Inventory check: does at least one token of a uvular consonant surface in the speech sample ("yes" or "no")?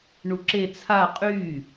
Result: yes